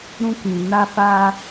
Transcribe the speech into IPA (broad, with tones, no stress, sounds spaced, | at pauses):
ɾ ũ˦ k ĩ˨ n a˦ f aː˦